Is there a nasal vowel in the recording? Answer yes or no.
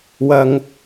no